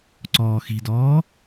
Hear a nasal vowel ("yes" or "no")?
no